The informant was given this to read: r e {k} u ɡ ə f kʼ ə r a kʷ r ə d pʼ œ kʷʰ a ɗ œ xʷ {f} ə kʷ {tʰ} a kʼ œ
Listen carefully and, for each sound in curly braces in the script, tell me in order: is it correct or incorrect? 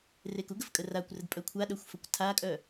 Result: correct, correct, correct

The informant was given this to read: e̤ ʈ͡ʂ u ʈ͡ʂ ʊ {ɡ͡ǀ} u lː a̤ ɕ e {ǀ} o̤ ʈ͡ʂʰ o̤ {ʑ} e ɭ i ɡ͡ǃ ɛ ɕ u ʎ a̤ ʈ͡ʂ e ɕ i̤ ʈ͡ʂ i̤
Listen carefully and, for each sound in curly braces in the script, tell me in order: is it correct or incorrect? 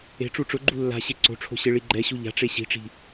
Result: incorrect: ɡ͡ǃ, correct, incorrect: ɕ

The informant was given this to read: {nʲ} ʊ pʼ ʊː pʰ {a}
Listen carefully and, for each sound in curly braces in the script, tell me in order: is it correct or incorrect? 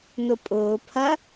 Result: incorrect: n, incorrect: ɐ

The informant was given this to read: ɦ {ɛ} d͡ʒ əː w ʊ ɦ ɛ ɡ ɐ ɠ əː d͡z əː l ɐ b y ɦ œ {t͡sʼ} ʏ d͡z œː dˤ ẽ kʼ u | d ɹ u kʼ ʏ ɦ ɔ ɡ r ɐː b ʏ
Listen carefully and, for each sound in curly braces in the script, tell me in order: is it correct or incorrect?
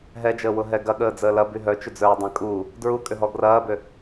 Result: correct, incorrect: t͡ʃ

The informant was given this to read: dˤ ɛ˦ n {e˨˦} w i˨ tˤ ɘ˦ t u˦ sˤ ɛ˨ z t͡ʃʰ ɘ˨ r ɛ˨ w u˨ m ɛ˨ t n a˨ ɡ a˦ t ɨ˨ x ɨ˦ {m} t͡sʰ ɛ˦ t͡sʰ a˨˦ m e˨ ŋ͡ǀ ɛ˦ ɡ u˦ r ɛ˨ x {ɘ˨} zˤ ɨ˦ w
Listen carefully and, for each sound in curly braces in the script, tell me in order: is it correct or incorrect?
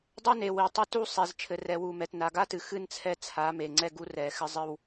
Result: incorrect: e˨, incorrect: n, incorrect: ɘ˦

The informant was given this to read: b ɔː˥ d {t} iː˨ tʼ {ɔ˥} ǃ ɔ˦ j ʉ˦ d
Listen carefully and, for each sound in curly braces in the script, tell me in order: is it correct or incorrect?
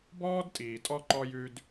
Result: incorrect: tʼ, correct

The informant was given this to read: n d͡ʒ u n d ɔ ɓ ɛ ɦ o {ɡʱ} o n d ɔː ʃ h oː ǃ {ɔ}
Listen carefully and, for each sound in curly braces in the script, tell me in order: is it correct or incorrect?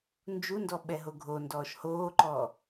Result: correct, incorrect: ɔː

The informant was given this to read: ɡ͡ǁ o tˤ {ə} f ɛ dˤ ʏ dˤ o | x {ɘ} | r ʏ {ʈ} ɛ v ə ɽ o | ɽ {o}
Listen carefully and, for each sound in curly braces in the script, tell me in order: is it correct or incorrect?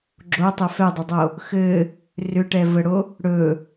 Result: correct, correct, correct, incorrect: ɵ

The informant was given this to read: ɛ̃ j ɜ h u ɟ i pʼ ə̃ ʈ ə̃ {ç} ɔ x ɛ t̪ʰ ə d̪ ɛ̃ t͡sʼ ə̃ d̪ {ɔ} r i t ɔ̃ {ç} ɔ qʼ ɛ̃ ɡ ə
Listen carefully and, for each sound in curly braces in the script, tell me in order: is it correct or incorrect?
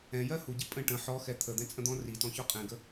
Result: incorrect: ħ, incorrect: ɔ̃, correct

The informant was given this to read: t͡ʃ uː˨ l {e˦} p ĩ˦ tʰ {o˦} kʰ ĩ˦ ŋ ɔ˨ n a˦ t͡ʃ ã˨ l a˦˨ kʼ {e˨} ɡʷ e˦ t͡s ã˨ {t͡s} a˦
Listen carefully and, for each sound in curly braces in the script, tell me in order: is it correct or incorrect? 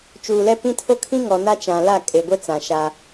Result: incorrect: ɛ˦, correct, correct, incorrect: ʃ

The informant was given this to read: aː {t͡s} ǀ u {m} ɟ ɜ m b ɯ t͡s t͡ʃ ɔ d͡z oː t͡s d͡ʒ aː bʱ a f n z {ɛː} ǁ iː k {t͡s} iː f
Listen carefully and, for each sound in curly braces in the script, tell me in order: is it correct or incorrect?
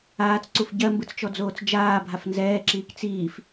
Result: correct, incorrect: f, correct, correct

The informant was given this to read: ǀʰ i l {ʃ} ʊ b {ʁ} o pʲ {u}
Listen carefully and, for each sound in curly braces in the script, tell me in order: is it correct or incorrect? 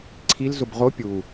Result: incorrect: z, correct, correct

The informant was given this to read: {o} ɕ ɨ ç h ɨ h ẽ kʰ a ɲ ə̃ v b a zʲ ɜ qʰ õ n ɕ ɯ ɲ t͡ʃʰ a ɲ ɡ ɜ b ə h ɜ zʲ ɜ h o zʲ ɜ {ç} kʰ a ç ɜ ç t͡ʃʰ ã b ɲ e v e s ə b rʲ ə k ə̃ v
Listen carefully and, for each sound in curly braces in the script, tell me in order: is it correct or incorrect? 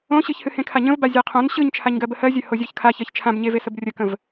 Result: incorrect: õ, correct

